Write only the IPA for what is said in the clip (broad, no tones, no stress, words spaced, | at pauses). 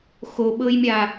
xoɓɤjmʲa